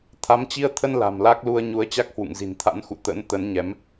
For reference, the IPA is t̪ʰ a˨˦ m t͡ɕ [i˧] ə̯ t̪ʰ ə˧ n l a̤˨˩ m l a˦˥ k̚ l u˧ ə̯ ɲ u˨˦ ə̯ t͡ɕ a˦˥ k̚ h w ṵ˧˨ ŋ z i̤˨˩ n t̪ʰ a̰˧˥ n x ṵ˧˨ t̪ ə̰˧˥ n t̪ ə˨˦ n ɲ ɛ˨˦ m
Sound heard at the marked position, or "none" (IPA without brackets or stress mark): i˧